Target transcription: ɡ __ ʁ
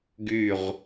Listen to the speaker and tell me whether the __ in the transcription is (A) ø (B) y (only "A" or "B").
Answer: B